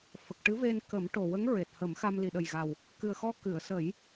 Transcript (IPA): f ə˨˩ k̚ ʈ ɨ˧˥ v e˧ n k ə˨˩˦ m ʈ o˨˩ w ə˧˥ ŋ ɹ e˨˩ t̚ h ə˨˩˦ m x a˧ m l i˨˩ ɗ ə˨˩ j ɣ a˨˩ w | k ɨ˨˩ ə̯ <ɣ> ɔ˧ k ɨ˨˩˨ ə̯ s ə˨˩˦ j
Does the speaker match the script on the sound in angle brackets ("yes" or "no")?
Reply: no